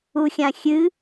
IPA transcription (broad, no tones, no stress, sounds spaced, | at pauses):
u xʲ ã xʲ ɨ